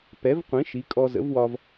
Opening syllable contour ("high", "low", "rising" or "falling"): rising